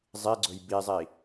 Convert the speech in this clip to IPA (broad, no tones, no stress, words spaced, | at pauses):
zˤiɡ͡ǀɵj bizˤi